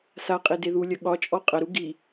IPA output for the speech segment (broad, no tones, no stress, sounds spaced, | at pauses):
s a qʼ e d e ð u lʲ ɐ ɠ ɒ t͡ʃʼ ɔ qʼ ɐ ɾ u ɡ i